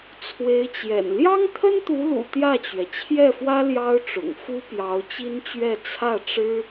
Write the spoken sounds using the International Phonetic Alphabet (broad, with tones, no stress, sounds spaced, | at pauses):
t͡sʰ w e˧˥ ɪ̯ t͡ɕ j ɛ̰˨˩ n l j ɑ˥ ŋ t̪ʰ ə˥ n t̪ u˧˥ l ṵ˨˩ t̪ j ä˥˩ t͡ɕ ɥ ɛ˩ t͡ɕʰ j ɛ˥˩ f w ä˥ l j ɑ˥ ʊ̯ ʈ͡ʂ ʊ̰˨˩ ŋ f u˥ p j ɑ˧˥ ʊ̯ t͡ɕ i˥ n t͡ɕ ɥ ɛ˥˧ t͡sʰ ä˥˩ ʈ͡ʂ ɻ̩˥